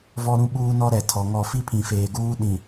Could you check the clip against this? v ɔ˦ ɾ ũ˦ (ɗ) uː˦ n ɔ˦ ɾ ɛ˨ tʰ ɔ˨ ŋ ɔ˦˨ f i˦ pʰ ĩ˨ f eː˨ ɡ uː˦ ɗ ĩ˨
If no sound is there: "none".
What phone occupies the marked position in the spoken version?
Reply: ɓ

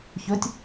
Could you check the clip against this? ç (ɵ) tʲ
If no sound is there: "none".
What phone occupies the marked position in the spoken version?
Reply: ɵ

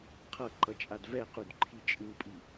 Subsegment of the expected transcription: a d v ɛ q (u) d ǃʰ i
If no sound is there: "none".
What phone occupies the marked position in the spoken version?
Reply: u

